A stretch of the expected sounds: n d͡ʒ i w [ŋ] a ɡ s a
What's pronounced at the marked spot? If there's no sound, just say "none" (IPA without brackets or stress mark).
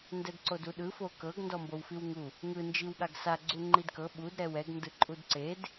ɠ